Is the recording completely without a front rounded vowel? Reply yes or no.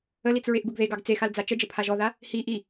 yes